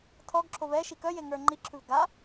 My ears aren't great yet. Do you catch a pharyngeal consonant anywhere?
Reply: no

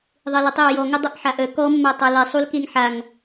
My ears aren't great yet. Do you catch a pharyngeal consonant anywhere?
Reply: yes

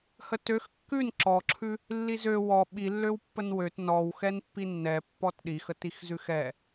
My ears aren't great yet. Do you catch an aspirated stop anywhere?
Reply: yes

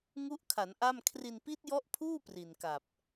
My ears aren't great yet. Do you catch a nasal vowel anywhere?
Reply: no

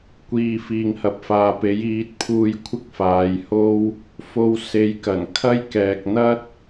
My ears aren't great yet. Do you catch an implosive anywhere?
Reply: no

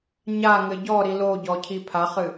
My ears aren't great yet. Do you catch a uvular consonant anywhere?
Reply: yes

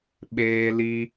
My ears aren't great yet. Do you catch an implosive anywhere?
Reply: yes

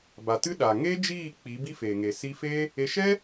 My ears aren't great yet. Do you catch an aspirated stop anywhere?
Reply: no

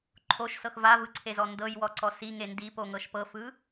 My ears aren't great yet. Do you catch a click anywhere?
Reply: yes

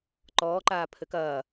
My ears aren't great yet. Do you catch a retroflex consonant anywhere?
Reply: no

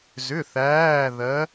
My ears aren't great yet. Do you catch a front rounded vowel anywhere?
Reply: yes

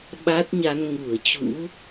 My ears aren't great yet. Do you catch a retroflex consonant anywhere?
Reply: no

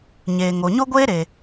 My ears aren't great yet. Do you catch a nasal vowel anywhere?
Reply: no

